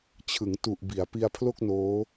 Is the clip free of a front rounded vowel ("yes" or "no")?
yes